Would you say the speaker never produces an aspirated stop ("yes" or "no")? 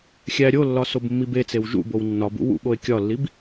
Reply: yes